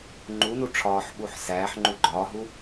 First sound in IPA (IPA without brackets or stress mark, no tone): ŋ͡ǃ